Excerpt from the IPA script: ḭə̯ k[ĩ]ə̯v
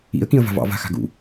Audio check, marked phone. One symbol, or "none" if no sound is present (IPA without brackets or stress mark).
ĩ